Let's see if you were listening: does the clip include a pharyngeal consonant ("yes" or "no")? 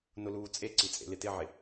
yes